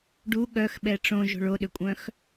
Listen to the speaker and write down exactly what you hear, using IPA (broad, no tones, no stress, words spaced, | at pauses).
ɖu ɠœxɓɛ ʈ͡ʂõʒo̤ɭ oɗʏkʷʼœ̃x